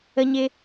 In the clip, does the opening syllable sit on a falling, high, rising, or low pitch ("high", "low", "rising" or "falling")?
high